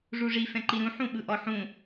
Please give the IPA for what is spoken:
ʐ u ʐ i f ɛ̃ ǃ i ɾ ũ ħ ũ ɓ ɯ ʔ ɔ ħ ũ

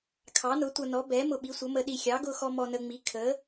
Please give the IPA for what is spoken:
kʰ ɑ˨˥ n ʊ˨˥ tʷ ʌ˧ n ɔ˨˥ b ɛ˨˥ m ʊ˧ ɓ i˨˥ sʷ ʌ˨˥ m ə˧ ɗ i˧ xʲ ɑ˨˥ ɡ ʊ˧ x ɔ˧ m ɔ˧ n ə˧ ŋ͡m i˨˥ kʰ ə˨˥

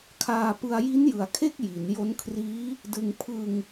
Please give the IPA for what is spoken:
kʰ aː˧ p ɯ˧ a̯ j i˦˥ n j ɯ˩˦ a̯ kʰ e˥˩ k̚ j i˩˦ n j o˦˥ n kʰ r iː˦˥ | d ɯ˧ ŋ pʰ ɯ˧ ŋ

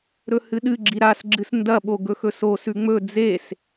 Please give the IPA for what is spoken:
ɾ ɵ h ɨ ɗ ɨ ɡ͡ǁ i ɾ a s ɡ͡ǁ ɨ s n d ɐ ɓ o ɡ ɵ x ɵ s o s ʉ ŋ͡m ɵ d͡z e s

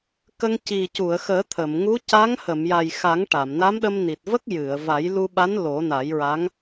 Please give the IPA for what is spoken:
k ə˧ ŋ c i˨˩ c u˨˩˨ ə̯ x əː˨˩˦ t̪ʰ ə˨˩˨ m ŋ u˧˥ c a˧˥ ŋ h ə˨˩˨ m j a˨˩ j x a˨˩˦ ŋ ʈ a˨˩˨ m n a˧˥ m ɗ ə˧ m n i˨˩ t̚ v ə˦˥ k̚ j ɨ˨˩˨ ə̯ v a˨˩˦ j l u˧ ɓ a˧˥ n l o˨˩˦ n a˨˩˦ j ɹ a˧˥ ŋ

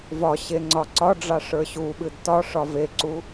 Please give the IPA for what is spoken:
v ɒ ɕ e ŋ͡ǀ ɒ ǀ ɒ ɖ͡ʐ ɑ ʂ ə˞ ɕ u ɓ ɨ d t ɒ ʂ ɒ v e ǀ u

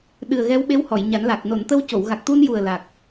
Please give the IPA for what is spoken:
ɗ ɨ˨˩ ə̯ ɣ ɛ˧˥ w ɓ e˧˥ w h ɔ˨˩˨ j ɲ a˨˩˦ n l a˨˩ k̚ n o˨˩˨ n t̪ ə˧ w c o˨˩˨ w ɣ a˨˩ k̚ t̪ u˧ n j u˨˩ ə̯ l a˨˩ k̚

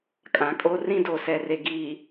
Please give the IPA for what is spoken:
kʼ ã˨ kʼ o˦ r ĩ˦ d o˨ s ɛ˨ r e˨ ɡ iː˨

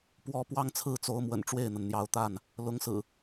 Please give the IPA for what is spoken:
p w ɔ˦ p w ɑ˦ ŋ t͡sʰ ɹ̩˥˨ t͡s o˨˦ ʊ̯ m w ə̰˨˩ n ʈ͡ʂ w e˥˨ ɪ̯ n̪ ə˩ n n̪ j ɑ˨˦ ʊ̯ t̪ a˥˨ n | l ʊ˨˦ ŋ s ɹ̩˨˩

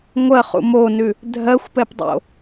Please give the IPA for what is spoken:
ŋʷ ɜ χ ṵ m o n ʉ | dʱ ɜ xʷ p ɛ p dˤ o̰

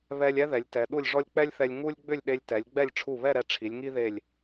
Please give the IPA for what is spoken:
β ɛ˥ lʲ ɛ˥ ð ɛ˩˧ lʲ t ɛ˩˧ ɗ u˥˧ lʲ ʐ ɔ˥ lʲ k͡p ɛ˥ lʲ θ ɛ˧ lʲ ŋ u˥ lʲ ɡ͡b ʏ˥˧ lʲ ɗ e˧ lʲ t ɛ˩˧ lʲ ɡ͡b ɛ˥˧ lʲ ʈ͡ʂʰ u˧˩ β ɛ˥˧ ɾ ɛ˧ ʈ͡ʂʰ i˩˧ lʲ ŋ i˥ ð e˧˩ lʲ

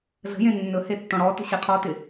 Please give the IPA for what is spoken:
ɮ ə̤ j ẽ nː ɵ h e tː ɔ̃ ɽ ɔ t ə̤ ɕ e qʰ ɔ t ɪ

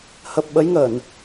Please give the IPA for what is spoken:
h ə˨˩ p̚ ɓ ə˨˦ j ŋ ə˧˩˨ n

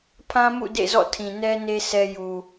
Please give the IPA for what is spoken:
pʰ ã˦ m ṵ˦˨ d ḛ˦˨ z ɔ̰˦˨ tʰ ĩ˨ n ɛ˦ n e˦ s ɛ˦ j u˨

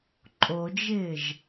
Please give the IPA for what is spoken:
ǃʼ o d͡ʒ ɪː ʒ

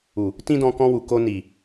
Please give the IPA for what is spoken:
u˨ | t ĩ˦ d ɔ̃˧ k ɔ̃˧ w u˨ k o˧ n i˨

